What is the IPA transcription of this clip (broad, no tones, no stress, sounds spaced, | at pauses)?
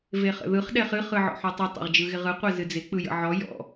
v e χ ə̰ ð ɯ χ ɗ ɛ χ ɨ χ ɯ ʕ ɔ̰ ħ ɔ tˤ ɪ tˤ ɛ̰ ʁ d͡ʒ ɯ ɣ ɪ ʁ ɯ qʷ ɛ z ɨ d͡z ɪ k͡p ɯ j ə̰ ʕ ɔ j ɔ̰